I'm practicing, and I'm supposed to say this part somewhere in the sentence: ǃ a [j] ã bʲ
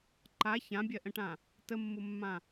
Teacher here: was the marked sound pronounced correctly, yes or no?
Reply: no